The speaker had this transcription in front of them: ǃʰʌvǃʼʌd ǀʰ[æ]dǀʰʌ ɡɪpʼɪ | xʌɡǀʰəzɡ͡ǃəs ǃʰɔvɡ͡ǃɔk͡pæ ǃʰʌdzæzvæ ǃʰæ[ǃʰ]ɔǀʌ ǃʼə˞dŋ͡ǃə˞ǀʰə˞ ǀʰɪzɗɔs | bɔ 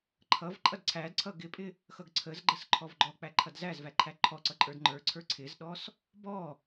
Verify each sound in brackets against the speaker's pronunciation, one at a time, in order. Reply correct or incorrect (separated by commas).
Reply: correct, correct